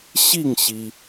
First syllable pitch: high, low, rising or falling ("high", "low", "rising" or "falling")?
falling